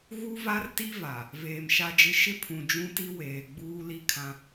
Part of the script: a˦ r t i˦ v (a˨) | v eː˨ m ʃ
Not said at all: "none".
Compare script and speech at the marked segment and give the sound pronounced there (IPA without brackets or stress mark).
a˨